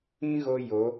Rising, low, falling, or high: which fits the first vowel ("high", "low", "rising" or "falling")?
high